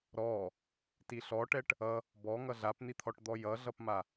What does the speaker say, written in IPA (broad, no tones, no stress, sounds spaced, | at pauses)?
ɾ ɔ | t i ɬ ɔ ʈ ɛ ʈ | ʌ | b ɔ ŋ ʌ ɮ a p n̪ i t̪ʰ ɔ ʈ d̪ ɔ j ʌ ɮ ʌ p m a